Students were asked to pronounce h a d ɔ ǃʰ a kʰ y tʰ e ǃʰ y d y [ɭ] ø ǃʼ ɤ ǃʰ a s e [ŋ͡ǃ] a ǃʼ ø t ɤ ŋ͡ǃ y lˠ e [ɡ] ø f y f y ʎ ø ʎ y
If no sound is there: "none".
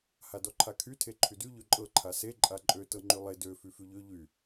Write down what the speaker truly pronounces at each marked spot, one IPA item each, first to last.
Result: ʎ, ǃʼ, d

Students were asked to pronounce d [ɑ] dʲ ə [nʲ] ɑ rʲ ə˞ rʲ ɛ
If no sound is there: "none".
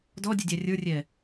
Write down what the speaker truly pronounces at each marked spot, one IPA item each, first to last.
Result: ɔ, dʲ

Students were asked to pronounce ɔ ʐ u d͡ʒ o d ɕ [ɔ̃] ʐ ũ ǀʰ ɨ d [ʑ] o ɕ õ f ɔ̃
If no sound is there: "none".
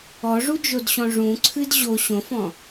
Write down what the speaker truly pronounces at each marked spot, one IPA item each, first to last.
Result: ɔ̃, ʑ

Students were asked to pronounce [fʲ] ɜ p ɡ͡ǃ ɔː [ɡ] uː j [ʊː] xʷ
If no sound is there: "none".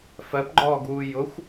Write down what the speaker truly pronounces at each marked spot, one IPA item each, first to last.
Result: f, ɡ, ʊ

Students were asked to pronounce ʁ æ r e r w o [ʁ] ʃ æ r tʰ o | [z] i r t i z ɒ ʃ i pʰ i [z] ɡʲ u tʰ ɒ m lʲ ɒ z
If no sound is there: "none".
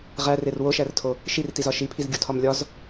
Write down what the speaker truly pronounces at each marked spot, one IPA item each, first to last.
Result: none, ʃ, z

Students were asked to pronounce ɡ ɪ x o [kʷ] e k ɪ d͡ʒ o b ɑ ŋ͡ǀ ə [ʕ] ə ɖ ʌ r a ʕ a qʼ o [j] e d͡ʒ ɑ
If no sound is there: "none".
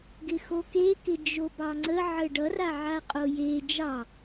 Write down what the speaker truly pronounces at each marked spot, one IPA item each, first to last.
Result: k, ʕ, j

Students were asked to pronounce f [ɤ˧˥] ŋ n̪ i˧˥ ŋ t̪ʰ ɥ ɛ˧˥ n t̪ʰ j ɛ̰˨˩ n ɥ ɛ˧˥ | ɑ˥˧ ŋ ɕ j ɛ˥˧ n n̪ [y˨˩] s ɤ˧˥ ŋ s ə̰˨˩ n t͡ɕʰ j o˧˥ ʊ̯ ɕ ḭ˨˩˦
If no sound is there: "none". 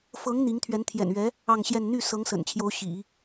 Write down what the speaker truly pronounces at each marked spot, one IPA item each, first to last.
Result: ɤ˧˥, y˥˩

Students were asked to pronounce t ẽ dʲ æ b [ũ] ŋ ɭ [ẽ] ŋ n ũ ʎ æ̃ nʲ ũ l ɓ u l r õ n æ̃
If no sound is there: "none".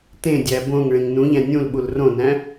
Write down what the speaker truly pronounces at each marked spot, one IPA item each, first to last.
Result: õ, ẽ

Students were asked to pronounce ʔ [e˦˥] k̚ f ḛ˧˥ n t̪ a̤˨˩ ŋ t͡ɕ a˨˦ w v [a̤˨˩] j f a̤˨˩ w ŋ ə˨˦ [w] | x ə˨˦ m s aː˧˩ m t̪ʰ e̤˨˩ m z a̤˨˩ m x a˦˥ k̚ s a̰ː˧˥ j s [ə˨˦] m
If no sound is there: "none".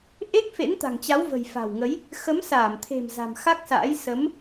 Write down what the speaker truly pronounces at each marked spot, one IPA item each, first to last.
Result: e˦˥, ə̤˨˩, j, ə˨˦

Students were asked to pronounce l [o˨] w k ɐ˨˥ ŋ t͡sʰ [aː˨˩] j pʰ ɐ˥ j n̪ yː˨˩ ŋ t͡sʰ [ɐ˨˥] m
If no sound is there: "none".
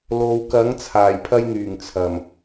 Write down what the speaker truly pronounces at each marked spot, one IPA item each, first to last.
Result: o˨, aː˨˩, ɐ˨˩

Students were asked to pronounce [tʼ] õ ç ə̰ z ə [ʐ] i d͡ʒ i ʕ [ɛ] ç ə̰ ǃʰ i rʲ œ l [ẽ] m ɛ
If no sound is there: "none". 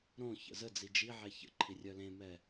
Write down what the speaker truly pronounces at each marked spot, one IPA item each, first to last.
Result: ɾ, d͡z, ɛ, ẽ

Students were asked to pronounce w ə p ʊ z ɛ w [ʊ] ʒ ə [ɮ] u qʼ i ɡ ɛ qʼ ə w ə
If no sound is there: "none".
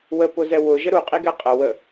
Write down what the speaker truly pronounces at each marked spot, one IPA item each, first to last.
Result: ʊ, ɾ

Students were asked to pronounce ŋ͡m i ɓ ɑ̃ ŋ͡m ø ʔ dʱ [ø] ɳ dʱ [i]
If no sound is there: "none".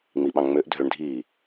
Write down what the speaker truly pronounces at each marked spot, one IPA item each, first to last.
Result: ø, iː

